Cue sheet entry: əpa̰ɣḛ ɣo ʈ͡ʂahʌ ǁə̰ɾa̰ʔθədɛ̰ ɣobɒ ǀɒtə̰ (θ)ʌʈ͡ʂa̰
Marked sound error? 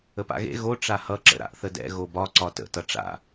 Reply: yes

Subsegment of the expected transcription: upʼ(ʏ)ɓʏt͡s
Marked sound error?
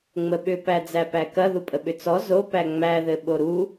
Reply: yes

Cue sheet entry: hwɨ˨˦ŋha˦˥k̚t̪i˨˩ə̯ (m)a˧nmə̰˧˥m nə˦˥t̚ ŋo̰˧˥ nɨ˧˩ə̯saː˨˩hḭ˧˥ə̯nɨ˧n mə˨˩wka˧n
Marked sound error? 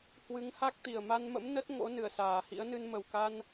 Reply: no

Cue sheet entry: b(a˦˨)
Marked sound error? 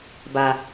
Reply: yes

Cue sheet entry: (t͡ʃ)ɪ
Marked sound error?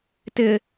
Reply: yes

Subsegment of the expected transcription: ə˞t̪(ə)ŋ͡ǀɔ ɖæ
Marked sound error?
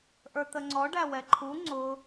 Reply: no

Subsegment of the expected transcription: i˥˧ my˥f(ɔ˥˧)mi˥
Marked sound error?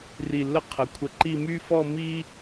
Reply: no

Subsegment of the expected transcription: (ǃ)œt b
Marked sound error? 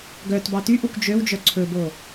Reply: yes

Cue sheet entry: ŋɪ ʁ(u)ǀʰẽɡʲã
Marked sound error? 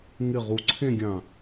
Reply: no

